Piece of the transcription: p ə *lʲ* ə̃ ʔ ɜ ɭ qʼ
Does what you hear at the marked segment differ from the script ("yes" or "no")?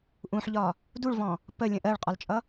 no